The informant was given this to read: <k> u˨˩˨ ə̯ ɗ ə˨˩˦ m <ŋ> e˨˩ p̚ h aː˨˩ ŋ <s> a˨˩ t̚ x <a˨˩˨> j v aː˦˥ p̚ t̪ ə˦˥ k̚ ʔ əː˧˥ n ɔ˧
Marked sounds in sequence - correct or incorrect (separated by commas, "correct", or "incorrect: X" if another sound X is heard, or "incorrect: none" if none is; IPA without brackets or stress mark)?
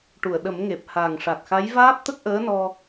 incorrect: ʈ, correct, incorrect: ʂ, incorrect: a˧˥